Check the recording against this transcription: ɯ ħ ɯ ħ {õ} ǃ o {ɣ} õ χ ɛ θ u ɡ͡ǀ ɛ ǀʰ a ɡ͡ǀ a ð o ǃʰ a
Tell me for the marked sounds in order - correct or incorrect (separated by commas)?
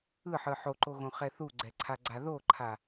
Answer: incorrect, correct